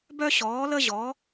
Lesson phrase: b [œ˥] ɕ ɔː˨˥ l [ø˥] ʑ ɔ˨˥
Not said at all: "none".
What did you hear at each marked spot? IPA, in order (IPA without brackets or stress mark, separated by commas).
œ˥, ə˥